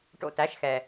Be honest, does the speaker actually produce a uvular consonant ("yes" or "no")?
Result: no